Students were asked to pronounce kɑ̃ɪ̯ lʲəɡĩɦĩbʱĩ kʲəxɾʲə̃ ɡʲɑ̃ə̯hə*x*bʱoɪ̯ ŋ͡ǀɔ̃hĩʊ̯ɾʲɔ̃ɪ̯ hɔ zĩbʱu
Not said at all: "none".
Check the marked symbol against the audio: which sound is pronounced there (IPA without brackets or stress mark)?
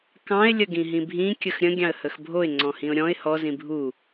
x